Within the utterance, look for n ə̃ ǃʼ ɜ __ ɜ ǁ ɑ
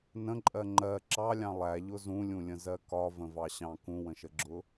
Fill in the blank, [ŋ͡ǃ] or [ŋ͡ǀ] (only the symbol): ŋ͡ǃ